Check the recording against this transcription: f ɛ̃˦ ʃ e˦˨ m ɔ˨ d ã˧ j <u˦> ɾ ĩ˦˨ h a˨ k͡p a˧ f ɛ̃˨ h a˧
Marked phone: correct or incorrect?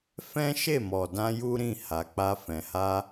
correct